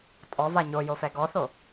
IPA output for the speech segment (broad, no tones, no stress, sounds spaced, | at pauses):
tʼ ɔ v a ɲ o j o f ɛ ɡ ɔ θ o